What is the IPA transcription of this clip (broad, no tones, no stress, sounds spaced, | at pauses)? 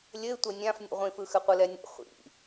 lʲ ɘ ɪ̯ tʷ ɘ nʲ ã f nʲ ṵ ʁʷ ĩ f ɯ x ɘ qʷ ɯ l ɛ nʲ ɛ̰ χʷ ḭ